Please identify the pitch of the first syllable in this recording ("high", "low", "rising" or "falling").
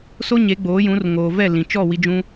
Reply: high